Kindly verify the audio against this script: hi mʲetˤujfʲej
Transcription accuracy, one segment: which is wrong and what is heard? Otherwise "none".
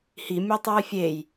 none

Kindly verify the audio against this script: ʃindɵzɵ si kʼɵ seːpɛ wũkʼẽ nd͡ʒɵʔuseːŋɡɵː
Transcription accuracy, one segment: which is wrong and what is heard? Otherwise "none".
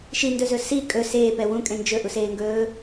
none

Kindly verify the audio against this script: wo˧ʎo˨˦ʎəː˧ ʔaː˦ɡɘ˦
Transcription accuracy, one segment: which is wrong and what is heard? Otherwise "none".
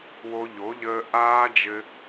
ɡ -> d͡ʒ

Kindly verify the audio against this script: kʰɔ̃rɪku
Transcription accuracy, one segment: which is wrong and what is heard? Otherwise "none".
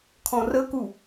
ɪ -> ə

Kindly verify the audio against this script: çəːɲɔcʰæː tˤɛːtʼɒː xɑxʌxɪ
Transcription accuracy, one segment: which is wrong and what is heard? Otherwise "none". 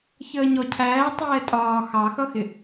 none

